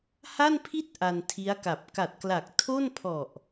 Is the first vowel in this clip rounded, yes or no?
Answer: no